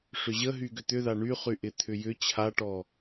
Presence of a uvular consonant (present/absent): present